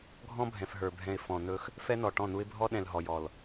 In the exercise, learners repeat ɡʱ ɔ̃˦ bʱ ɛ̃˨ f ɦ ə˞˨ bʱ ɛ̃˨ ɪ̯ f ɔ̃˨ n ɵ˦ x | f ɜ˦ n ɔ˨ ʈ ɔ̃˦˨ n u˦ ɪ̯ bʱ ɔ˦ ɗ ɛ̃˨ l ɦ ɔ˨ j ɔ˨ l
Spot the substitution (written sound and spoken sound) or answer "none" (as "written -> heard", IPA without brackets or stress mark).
ɜ˦ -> ɛ˦